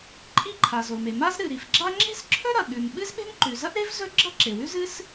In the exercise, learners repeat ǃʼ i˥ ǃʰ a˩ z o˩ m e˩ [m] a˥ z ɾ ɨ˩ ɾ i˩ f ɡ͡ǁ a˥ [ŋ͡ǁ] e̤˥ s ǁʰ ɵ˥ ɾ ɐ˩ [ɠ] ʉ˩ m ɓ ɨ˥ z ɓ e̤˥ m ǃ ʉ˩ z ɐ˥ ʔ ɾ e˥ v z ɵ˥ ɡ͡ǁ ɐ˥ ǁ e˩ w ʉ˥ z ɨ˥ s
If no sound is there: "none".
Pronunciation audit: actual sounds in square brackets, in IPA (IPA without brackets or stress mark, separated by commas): m, ŋ͡ǁ, ɠ